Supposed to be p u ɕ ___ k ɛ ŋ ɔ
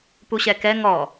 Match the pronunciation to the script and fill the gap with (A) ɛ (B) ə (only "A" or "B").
A